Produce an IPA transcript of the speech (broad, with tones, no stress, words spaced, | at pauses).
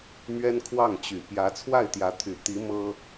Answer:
mɥɛ˥nkʰwɑ˥˩ŋ t͡ɕy˨˩ pjä˧˥t͡sʰwa˥˩ɪ̯t̪jä˧˥t̪ʰy˨˩ t̪i˧˥ mɤ˥